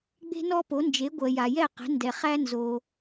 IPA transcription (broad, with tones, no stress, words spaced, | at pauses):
ɡ͡be̤˥nɔ˥po˩˥nd͡ʒe˩˥ ɡʷɜ˩ja˩jɛ˥˩ qɛ̤˩˥ndɛ˩ χæ˥nzo˩